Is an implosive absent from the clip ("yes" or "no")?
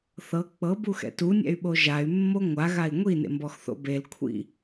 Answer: no